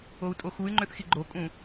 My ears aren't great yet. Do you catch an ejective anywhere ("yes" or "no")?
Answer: yes